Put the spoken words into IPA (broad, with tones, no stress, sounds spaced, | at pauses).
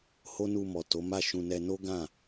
h o˦ n u˧ m ɔ˨ t o˨˦ m a˦˨ ʃ ũ˧ n ɛ˧ n o˦ ɡ ã˦˨